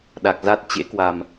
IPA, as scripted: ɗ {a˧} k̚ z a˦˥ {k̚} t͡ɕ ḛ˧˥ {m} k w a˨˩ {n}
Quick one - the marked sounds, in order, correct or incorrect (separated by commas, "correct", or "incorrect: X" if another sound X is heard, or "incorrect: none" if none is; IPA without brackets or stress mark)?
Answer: incorrect: a˨˩, incorrect: t̚, incorrect: none, incorrect: m